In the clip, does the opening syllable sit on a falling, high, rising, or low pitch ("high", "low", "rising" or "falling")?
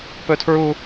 high